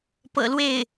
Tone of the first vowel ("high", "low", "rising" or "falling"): low